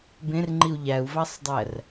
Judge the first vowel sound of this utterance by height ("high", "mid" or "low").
mid